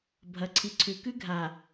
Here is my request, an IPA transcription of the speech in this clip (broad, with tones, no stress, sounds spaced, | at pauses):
bʱ ɐ˨ ǀʰ i˨ ǀʰ ʉ˨ k ʉ˦ ɡʱ a˨